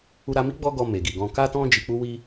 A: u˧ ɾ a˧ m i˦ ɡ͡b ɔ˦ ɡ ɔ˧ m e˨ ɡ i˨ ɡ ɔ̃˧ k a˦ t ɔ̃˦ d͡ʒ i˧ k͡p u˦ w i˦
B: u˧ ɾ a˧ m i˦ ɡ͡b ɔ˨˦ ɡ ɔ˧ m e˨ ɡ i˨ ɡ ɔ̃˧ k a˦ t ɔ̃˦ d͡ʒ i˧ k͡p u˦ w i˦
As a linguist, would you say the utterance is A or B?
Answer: A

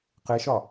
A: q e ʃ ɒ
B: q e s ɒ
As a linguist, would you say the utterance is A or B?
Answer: A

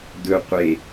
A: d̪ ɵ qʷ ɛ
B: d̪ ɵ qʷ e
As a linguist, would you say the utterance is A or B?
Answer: B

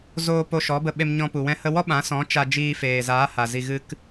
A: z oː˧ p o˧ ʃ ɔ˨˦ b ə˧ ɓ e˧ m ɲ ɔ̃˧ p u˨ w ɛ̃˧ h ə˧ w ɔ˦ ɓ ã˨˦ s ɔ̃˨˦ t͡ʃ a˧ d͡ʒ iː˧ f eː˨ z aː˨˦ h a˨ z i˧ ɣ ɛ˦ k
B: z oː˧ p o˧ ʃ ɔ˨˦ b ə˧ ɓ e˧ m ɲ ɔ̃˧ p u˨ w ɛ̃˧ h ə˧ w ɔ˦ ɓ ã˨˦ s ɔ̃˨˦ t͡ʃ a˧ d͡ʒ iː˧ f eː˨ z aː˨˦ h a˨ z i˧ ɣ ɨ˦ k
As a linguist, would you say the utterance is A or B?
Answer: B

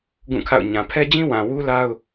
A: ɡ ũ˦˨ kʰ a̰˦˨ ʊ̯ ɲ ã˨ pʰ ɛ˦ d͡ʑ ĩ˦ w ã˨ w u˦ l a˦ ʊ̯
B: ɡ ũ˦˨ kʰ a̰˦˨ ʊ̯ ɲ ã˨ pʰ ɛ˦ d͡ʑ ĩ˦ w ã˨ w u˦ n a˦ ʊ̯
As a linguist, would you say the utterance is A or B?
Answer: A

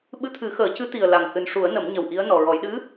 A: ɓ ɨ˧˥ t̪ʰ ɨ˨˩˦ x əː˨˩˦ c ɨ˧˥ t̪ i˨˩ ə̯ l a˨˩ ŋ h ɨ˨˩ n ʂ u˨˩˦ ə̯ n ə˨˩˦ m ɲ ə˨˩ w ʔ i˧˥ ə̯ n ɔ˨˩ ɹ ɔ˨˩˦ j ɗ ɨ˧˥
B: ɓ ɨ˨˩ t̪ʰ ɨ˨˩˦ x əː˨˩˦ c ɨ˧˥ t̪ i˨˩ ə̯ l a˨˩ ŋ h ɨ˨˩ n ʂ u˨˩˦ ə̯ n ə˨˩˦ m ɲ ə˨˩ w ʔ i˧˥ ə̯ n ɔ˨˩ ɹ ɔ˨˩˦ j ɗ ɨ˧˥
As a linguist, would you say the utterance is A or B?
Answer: A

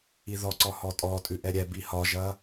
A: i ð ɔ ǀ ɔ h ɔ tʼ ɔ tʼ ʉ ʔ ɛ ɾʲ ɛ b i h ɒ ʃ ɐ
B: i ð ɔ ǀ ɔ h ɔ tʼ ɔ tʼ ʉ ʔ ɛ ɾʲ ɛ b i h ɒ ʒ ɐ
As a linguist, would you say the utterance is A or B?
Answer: B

